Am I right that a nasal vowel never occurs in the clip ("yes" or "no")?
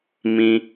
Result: no